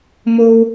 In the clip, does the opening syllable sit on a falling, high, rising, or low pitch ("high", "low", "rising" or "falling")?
high